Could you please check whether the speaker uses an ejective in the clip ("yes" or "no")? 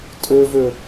yes